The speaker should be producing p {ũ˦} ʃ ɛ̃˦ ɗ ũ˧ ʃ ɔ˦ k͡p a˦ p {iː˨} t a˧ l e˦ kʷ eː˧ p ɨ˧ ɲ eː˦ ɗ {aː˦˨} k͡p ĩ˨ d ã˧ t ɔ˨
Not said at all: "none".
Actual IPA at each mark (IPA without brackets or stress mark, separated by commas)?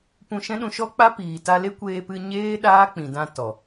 ũ˧, iː˨, aː˦